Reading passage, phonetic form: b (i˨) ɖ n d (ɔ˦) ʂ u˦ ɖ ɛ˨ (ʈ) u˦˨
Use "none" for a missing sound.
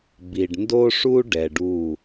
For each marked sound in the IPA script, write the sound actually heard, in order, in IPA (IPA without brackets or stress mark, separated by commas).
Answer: i˨, o˦, ɖ